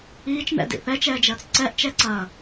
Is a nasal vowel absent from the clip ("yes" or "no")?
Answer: yes